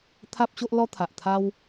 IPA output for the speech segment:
t̪ʰ a˦ p̚ ɕ o˦ ʔ l ɔ˦ t̪ʰ a˨ ʔ t̪ʰ a˦ w

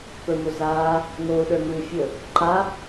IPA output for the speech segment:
p ə˞ m o z aː | ŋ oː ɗ ə˞ ŋ uː fʲ ɵ | ǃ a

